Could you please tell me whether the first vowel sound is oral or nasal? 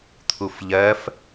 oral